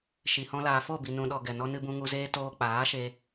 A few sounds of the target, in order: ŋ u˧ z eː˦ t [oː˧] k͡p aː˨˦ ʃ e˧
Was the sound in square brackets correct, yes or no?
yes